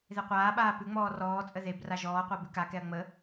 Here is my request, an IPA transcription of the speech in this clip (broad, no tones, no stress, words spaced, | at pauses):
ðeqʷaːɓaː pʉŋ͡mɔː rɔːt͡sʼə ðebra ʒɔːqʷa bʉkakɛɐ̯ ŋ͡mə